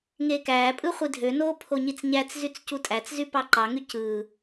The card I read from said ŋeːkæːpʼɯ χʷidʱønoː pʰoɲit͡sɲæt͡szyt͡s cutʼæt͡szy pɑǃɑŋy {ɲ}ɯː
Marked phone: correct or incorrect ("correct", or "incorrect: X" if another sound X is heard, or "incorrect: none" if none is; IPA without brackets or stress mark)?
incorrect: c